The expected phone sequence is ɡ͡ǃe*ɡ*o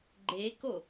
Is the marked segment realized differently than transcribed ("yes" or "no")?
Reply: yes